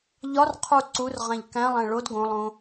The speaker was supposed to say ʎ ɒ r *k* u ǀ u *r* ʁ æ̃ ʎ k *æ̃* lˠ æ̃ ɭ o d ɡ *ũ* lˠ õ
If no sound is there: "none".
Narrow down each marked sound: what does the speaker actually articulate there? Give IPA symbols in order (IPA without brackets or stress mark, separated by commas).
qʰ, r, æ̃, õ